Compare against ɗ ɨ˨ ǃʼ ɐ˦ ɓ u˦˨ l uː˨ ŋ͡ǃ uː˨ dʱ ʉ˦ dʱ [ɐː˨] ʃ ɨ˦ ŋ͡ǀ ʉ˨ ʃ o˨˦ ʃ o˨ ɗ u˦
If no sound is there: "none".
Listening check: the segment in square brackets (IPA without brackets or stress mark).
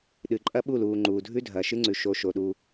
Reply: ɐː˨